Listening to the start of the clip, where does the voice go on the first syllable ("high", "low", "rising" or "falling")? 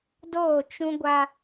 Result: falling